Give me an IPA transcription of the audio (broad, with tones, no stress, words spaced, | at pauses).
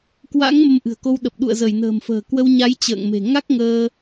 kwa̰˧˥ŋ mə˧mʔɨ̤˨˩ə̯ko˧wɗə˨˩p̚ ɗṵ˧˨ə̯zə˧˩jnə̤ː˨˩mfə̤ː˨˩ kwə˧wɲa˨˦jt͡ɕə̰ː˧˨ŋme̤˨˩ ŋa˦˥k̚ŋəː˧